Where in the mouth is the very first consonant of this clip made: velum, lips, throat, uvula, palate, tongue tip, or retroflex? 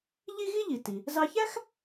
palate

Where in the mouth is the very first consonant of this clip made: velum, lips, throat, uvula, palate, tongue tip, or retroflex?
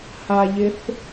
throat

